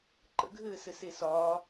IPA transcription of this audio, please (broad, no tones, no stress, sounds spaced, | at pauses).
ǃ ə̰ ɡʱ ɘː s ɘ s e s ɒː